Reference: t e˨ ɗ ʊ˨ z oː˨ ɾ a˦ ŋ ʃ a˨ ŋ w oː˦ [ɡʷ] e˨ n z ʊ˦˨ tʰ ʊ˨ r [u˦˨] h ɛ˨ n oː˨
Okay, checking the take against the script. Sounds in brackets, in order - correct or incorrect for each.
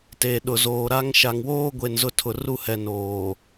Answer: correct, correct

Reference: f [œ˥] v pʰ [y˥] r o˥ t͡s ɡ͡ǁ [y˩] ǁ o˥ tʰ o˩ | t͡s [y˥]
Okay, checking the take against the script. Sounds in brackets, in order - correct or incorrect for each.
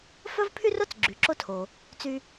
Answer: correct, correct, correct, correct

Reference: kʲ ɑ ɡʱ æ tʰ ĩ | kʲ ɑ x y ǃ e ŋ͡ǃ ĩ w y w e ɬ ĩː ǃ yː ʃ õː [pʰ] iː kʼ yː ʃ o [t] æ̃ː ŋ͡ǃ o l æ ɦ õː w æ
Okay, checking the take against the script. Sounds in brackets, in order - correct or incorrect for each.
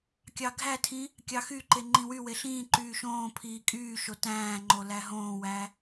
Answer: correct, correct

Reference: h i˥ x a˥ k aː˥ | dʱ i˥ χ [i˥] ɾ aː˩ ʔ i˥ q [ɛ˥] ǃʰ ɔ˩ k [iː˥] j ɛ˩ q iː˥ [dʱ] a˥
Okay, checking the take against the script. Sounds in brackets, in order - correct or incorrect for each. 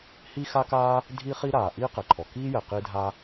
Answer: correct, incorrect, correct, correct

